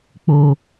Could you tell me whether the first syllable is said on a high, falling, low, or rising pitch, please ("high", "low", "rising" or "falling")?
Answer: low